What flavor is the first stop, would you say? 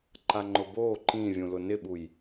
click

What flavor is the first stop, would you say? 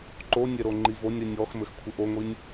click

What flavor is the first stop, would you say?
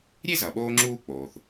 implosive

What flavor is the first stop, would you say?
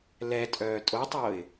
ejective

